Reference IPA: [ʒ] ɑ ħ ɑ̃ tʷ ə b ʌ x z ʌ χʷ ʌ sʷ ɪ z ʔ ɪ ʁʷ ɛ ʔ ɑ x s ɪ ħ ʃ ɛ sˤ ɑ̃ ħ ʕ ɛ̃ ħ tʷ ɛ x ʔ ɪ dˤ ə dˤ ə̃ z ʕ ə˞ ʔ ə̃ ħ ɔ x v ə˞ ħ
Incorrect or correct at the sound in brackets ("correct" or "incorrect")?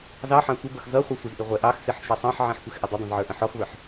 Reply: incorrect